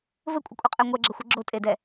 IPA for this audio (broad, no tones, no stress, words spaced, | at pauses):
vɘkʷʼɐkʷʼɛqʼɛ ŋʷɛɡ͡ǁɐxʷe ɡ͡ǁotʼedɛ